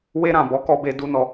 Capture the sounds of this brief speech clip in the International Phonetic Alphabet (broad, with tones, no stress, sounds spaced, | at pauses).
w e˧ ɾ ã˨ b ɔ˨˦ k ɔ˧ b e˧ d u˧ n ɔ˧